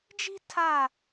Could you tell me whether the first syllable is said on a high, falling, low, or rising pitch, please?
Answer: high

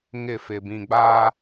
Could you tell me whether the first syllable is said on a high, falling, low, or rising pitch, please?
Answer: falling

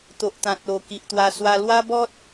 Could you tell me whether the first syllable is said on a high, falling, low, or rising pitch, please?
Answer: low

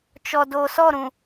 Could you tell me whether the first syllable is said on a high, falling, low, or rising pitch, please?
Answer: low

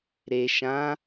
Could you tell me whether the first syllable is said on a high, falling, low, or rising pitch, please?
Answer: low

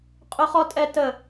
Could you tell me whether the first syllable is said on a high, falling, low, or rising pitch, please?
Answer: high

